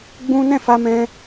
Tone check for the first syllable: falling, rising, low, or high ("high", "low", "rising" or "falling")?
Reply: high